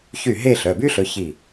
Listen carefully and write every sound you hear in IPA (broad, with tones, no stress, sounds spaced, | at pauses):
ç y˥˩ ɦ e˥˧ ɬ œ˩˧˩ b y˥ ɬ ɵ˨˦ ç i˥˩